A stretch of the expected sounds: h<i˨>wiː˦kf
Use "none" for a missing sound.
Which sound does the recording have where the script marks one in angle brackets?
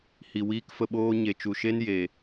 i˨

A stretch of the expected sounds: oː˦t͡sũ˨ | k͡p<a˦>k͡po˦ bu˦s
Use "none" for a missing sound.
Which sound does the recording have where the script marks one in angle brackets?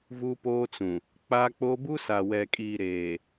a˦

